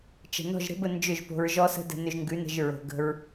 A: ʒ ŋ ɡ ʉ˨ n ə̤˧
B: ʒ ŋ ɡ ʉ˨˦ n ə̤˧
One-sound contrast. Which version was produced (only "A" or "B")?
B